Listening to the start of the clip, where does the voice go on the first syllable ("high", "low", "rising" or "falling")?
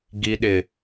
low